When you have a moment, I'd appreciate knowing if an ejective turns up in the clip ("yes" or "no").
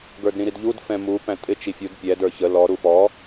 yes